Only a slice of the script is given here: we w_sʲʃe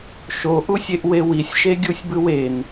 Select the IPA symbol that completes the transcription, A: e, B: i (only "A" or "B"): B